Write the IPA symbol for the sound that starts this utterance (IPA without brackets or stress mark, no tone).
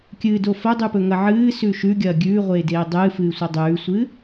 kʲ